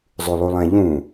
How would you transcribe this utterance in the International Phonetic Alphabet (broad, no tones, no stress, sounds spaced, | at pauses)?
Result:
zˤ ʉ lˠ u lˠ ɛ̃ ʎ ũ